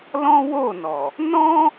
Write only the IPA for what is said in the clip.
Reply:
lɔ̃˦wo˦˨nɔ˨ | nɔ̃˦

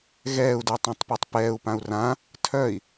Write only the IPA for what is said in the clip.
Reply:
ɣɛːu̯dœtˤãtˤpøtˤ pɛːu̯pãu̯ rã | tʰœi̯

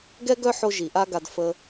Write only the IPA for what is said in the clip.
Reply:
ɡɛ˦ɡœ˦ħo˧ ʒi˨ʔa˦ɡa˧d fə˧

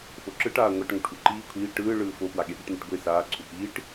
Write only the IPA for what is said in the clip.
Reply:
foǁɯʈaː ŋʷaʈŋoʈ ʔuǃiː kʷʰiː ʈɯːɭɯː fopwa ɠeɓuʈneʈɡʷe saːǀʰu piːʈ

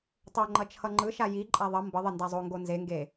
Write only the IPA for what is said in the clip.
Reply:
tˤoŋ͡ǃʌ t͡ʃʰʌŋ͡ǃɯʃa jiǃʼa ðˤʌ mbʌðˤɛ ndazˤoŋɡo nzeŋɡe

